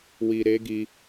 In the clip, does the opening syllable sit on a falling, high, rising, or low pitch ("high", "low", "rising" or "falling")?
low